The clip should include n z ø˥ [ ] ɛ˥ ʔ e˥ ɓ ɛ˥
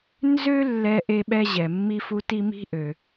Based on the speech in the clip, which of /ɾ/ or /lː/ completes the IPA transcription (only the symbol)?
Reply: lː